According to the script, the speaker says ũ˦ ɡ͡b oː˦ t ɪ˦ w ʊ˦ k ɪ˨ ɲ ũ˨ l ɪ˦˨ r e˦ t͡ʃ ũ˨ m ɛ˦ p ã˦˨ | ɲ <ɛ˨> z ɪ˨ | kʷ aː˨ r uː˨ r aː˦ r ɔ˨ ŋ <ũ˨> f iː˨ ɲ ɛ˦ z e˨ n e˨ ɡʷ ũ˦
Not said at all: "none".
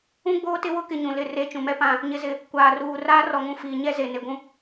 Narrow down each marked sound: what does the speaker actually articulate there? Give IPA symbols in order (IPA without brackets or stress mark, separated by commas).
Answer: ɪ˨, ũ˨